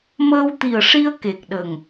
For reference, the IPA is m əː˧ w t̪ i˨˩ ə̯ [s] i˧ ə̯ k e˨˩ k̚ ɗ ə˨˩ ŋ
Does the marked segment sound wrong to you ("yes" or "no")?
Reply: yes